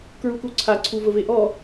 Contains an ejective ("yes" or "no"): no